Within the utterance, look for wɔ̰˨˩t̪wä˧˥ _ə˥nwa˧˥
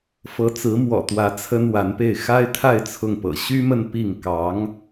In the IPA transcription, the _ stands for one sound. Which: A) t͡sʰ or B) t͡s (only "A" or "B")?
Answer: A